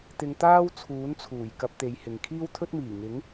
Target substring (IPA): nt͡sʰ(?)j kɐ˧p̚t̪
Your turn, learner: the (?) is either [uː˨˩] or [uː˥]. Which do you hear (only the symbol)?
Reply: uː˨˩